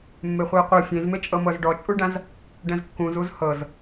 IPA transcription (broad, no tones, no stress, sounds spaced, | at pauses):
mː e χʷ i ɐ̯ qʷ ɤ fʲ ẽ z m e t͡ʃʼ ɤ m ɤ z ɖ ɔ t͡ʃʼ u ɖ ã z | ɖ ɛ̃ z kː ũ z u z h ɤ z